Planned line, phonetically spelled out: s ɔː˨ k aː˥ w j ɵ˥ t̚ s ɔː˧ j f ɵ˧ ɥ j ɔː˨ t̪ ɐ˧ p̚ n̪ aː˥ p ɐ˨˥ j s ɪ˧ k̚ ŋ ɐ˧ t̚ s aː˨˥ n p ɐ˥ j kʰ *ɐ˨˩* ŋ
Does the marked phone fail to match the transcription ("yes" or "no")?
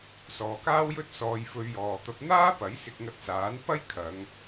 yes